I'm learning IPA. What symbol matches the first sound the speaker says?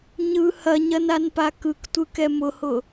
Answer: ɲ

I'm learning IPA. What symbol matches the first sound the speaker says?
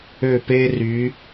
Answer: ø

